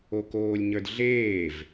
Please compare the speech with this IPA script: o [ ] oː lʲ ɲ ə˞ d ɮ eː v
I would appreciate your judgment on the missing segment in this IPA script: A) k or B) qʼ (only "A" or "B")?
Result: A